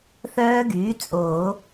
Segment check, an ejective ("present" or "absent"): present